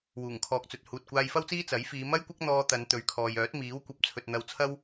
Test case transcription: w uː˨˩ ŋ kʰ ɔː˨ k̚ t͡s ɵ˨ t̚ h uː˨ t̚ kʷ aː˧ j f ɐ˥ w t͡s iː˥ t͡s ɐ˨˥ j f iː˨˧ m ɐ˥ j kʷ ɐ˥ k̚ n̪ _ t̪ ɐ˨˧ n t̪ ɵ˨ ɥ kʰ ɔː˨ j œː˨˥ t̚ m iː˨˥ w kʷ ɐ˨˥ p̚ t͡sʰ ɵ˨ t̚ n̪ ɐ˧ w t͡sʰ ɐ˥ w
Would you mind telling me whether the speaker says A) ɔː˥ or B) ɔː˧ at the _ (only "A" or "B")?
B